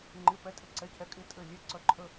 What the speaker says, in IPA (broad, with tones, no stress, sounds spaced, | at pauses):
ŋ͡ǃ ɪ˧˥˧ p ɛ˧˥ tʼ ɪ˧˥˧ ǀ ɛ˧˥ cʰ ɛ˧˥ kʼ ɪ˧˥˧ tʼ ɘ˧˥˧ lʲ ɛ˧˥˧ ǀ œ˧˥ ǃʰ ə˧˥˧